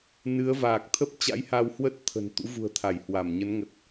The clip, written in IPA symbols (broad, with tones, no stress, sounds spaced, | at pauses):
n ɨ˨˦ ə̯ v aː˨˩ k̚ t̪ʰ ə˦˥ p̚ t͡ɕ a̰˧˥ j h a˧ w h w ə˦˥ t̚ t̪ʰ ə̤˨˩ n t̪ ṵ˧˥ v ṳ˨˩ ə̯ t̪ʰ a˧˩ j h w a˧˩ m ɲ ə˨˦ n ŋ ə˨˩ t̚